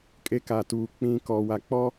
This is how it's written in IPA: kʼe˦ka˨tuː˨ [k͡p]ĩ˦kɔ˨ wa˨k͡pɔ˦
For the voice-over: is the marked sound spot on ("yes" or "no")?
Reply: yes